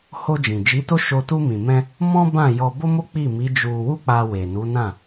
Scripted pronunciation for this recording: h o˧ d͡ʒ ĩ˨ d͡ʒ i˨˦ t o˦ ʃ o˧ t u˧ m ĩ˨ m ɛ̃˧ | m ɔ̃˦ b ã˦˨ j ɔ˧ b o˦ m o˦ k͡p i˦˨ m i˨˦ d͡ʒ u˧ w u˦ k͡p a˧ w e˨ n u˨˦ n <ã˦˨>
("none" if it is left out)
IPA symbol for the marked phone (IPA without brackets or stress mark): ã˦˨